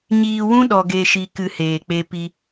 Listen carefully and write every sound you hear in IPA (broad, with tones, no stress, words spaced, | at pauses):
ɲiː˧wũ˦ ɗɔ˧ɡe˧ʃi˧ kɨ˧heː˨k͡pe˧ pi˧